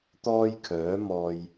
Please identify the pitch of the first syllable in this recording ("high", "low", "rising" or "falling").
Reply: high